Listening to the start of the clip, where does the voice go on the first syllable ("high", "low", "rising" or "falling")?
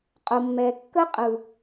low